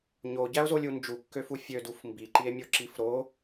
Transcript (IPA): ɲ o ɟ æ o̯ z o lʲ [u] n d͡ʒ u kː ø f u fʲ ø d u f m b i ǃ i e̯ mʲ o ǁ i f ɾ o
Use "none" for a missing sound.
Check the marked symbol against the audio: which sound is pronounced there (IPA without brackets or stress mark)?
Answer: u